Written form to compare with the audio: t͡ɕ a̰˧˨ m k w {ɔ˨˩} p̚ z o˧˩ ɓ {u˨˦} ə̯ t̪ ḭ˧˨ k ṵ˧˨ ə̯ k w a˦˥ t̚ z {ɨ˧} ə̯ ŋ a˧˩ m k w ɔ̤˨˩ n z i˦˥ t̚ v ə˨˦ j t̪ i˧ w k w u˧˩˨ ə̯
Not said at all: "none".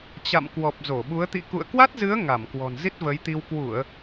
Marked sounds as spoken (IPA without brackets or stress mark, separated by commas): ɔ˨˩, u˨˦, ɨ˨˦